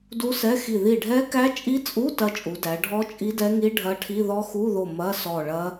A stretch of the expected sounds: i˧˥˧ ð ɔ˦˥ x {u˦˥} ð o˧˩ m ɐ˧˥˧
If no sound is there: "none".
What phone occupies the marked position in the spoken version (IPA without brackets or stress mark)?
u˧˥˧